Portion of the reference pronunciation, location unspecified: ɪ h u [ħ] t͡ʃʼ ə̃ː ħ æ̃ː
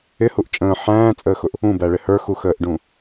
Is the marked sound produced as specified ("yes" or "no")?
no